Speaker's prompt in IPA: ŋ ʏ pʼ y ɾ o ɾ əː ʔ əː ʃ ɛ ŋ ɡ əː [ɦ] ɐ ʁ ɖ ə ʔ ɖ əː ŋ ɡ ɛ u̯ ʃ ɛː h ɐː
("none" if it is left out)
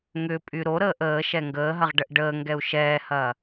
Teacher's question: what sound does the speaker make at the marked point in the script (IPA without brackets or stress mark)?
ɦ